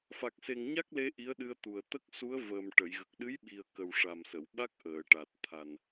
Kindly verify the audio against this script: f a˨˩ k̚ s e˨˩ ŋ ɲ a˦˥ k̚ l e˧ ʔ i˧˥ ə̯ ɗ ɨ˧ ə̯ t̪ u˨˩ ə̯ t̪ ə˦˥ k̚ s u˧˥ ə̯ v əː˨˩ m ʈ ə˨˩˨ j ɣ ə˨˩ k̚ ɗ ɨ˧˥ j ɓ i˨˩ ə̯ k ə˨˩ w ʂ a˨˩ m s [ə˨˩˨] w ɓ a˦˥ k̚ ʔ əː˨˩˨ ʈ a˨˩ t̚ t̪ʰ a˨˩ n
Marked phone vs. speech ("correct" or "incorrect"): correct